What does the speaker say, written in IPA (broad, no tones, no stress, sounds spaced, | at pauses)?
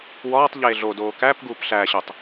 w ɒː tˤ ʎ eː ɮ o d oː k æ p ɡ uː p ɬ æ ɕ o tˤ